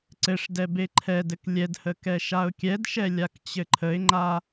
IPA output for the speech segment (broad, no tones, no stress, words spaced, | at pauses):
ǀɘʂdɛ beǃʰɛdɘk lʲɛdhə kɛʃaʊ̯kʲɛdʃɛ lʲakt͡ɕɘǃʰəɪ̯ŋ͡ǃa